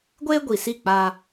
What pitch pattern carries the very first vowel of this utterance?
high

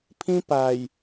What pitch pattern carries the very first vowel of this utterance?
high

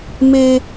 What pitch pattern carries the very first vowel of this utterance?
high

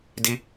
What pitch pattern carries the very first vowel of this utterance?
high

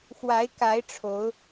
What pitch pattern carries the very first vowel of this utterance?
rising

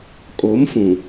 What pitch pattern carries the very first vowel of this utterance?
rising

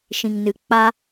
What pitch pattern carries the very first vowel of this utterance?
low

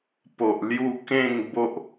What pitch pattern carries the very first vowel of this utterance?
low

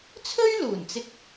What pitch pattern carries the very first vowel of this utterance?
high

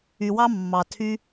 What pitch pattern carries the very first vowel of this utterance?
low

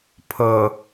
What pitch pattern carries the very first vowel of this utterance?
low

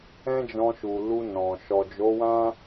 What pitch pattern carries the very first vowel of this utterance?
high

